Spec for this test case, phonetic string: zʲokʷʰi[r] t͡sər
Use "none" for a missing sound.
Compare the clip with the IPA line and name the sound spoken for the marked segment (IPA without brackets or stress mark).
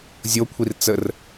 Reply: r